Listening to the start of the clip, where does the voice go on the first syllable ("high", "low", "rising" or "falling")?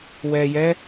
low